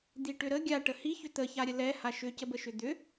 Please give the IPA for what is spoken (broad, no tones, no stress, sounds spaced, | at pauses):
d̪ i ʈ ʏ ɾ ə ɡʲ a ʈ ə h i ç ʏ t̪ ə ç a ɾʲ ə l ɛ h a ʃ ʏ c ə b ə ʃ ʏ d̪ ʏ